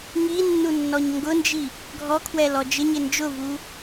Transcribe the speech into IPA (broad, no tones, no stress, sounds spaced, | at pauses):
ŋ i nː u nː ɔ ɲ ŋ ɡ ʊ n d͡ʒ i | ɡʱ ɔ kʰ w ɛ l ɔ d͡ʒ ɪ ɲ ɪ n d͡ʒ ʊ v u